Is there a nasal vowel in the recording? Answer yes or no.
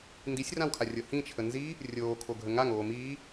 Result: yes